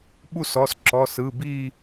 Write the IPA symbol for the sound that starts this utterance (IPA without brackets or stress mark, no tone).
ɓ